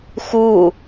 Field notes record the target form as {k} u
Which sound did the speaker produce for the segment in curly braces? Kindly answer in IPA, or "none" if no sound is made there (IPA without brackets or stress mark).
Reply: x